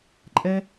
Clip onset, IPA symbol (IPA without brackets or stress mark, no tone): ǃʼ